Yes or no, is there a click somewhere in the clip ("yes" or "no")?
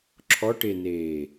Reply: yes